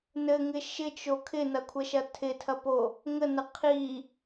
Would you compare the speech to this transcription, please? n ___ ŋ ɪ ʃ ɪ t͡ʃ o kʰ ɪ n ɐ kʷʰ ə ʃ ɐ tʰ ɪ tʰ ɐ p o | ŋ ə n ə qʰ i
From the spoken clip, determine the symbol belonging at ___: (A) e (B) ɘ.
B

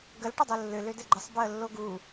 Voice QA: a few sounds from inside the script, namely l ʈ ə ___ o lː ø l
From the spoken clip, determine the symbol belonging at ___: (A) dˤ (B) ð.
A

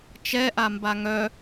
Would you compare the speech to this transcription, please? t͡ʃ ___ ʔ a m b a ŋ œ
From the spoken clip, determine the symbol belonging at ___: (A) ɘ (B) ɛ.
B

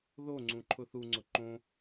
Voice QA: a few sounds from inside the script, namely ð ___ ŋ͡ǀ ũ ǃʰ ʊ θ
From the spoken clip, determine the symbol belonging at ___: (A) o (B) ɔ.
A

